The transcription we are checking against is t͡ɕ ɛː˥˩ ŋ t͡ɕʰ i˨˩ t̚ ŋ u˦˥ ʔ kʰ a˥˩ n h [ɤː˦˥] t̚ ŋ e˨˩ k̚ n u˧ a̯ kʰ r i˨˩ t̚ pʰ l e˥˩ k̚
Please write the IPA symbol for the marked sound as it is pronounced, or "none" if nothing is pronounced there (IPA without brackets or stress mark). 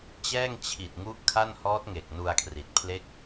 ɔː˦˥